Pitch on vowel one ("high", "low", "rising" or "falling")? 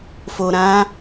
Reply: low